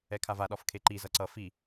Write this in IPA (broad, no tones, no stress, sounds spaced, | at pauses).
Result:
ɛ kʰ a v a ɗ ɒ f kʰ e ǃ i z ʌ ǀ ʌ f i